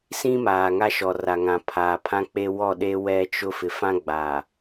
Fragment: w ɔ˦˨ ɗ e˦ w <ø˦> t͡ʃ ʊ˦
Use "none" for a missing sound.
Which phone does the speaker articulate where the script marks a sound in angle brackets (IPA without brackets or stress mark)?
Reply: ɛ˦